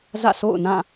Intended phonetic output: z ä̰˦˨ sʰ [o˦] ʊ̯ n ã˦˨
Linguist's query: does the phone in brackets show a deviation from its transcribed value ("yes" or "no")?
yes